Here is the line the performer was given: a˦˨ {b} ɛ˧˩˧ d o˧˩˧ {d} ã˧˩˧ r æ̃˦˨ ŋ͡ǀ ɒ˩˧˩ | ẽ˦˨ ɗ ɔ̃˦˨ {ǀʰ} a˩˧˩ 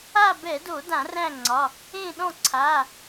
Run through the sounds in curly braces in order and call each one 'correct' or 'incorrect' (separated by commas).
correct, correct, correct